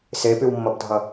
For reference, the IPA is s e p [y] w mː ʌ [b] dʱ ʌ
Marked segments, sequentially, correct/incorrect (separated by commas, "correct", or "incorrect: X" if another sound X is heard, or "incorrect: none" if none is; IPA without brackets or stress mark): correct, correct